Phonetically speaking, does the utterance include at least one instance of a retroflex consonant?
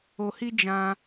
no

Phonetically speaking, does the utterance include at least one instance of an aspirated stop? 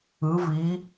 no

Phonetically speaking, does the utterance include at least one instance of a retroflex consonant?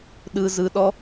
no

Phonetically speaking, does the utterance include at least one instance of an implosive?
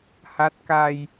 no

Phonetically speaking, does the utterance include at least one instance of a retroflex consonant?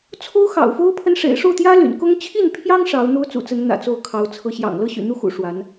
yes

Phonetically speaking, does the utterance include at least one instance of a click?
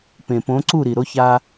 yes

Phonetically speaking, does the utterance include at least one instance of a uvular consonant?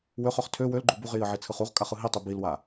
yes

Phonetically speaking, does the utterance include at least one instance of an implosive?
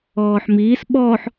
yes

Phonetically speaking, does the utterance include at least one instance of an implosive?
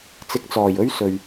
no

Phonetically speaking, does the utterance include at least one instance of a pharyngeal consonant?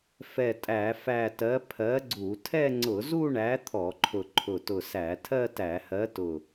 no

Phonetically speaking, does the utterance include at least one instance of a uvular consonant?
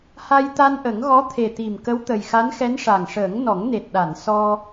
no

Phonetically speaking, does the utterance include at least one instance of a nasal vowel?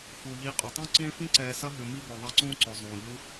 yes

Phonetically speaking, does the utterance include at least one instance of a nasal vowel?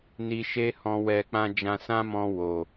yes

